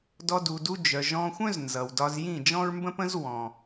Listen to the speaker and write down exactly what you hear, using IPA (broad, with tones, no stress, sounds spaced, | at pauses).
d ɔ˧ d u˨ d u˧ d͡ʒ œ˨ ʒ ɔ̃˧ xʷ œ̃˦ z n z ʌ˨ w d ɒ˧ z j ĩ˦˨ d͡ʒ ɔ̃˦ ɹ m b ə̃˦ p ə̃˦ z w ɔ̃˨